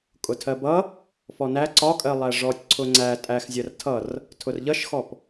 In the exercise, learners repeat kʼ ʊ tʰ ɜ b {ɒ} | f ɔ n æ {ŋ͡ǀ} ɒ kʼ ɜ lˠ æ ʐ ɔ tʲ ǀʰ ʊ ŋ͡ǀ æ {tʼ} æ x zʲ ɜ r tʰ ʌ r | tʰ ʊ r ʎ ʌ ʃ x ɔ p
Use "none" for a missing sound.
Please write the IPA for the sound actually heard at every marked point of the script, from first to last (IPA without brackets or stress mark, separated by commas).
ʌ, ǀ, tʼ